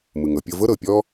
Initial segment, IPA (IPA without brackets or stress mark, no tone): m